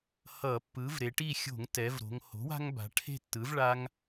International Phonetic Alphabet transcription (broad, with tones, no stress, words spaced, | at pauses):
hʌ˧˩˧pːɯ˩˥v ɾe˩˧ʈi˥˨ xʲo̤˧˩˧ŋtɛ˩˧v ɾo̤˩˧ŋho̤˩˥wa̤˦ŋba̤˩˧ ʈʰe̤˥˨tːɯ˩˥vɭa˦ŋ